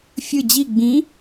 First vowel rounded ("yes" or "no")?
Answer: no